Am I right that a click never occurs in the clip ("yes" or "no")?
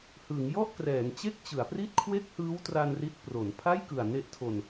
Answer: yes